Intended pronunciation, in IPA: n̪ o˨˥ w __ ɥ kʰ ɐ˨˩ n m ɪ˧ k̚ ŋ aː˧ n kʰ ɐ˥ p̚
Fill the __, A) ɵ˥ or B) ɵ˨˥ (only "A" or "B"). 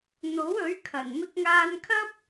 B